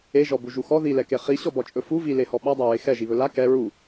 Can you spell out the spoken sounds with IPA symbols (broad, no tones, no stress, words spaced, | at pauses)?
eʒɔbuʒu xɔ ðilɛke χiɕɔbɔt͡ʃʼɵ fu vilehɔ ɓadˤaɹe xɛʒiβɵ la kɛ ɹu